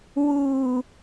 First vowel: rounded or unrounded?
rounded